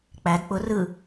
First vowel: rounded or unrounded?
unrounded